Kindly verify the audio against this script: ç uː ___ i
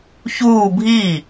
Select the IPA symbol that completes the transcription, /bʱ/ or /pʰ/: bʱ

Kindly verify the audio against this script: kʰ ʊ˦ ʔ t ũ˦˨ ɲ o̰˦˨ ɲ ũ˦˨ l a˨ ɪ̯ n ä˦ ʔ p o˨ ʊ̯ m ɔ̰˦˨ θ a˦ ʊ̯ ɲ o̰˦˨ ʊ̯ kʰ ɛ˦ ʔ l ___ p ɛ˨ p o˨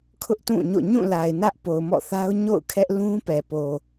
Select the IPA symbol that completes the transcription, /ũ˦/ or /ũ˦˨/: ũ˦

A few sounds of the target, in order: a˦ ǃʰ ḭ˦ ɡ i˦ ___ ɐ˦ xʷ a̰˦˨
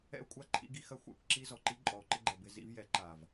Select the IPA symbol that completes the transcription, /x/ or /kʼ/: x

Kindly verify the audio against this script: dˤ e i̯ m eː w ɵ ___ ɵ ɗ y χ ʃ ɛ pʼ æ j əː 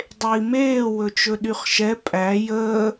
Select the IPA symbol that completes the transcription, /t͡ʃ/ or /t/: t͡ʃ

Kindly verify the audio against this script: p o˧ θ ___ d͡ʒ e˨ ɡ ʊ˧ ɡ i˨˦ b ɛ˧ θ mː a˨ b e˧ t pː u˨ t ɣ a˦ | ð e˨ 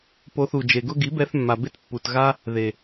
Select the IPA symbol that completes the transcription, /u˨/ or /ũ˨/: u˨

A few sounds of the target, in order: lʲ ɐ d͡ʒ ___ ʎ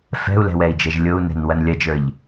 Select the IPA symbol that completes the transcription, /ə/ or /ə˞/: ə˞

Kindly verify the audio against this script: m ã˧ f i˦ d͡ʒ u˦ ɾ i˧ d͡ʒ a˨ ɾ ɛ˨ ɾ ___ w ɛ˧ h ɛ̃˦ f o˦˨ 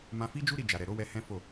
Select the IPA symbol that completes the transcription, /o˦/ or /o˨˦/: o˨˦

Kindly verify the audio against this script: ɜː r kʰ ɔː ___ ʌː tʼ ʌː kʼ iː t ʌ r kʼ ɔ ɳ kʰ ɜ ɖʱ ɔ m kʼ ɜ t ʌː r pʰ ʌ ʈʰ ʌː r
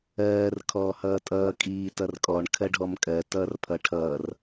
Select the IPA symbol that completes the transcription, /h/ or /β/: h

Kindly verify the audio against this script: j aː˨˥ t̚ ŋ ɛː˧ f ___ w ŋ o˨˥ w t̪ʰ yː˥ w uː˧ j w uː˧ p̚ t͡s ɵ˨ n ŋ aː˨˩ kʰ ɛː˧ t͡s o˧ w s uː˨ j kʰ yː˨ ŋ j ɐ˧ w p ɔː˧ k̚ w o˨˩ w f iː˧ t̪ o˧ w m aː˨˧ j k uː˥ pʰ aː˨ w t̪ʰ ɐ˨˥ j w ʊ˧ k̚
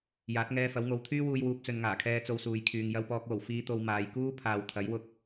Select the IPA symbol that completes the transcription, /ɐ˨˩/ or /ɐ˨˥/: ɐ˨˥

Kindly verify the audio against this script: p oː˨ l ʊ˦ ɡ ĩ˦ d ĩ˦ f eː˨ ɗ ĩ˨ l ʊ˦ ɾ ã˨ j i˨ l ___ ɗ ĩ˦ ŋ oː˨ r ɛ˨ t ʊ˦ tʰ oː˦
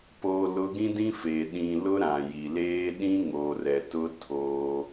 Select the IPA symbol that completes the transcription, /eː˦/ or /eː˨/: eː˦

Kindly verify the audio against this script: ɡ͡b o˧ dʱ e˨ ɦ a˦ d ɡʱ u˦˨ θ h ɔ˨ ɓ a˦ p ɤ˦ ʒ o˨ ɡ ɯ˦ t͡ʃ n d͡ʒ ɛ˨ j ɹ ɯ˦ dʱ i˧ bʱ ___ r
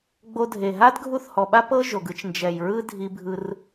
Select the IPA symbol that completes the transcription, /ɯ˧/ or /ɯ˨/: ɯ˧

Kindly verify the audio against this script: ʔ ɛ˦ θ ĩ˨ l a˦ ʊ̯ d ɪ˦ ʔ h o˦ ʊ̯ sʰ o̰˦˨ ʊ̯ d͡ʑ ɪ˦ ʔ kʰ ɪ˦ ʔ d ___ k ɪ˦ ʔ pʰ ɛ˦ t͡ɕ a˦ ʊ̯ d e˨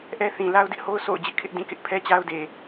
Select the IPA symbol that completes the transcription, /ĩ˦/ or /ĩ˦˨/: ĩ˦˨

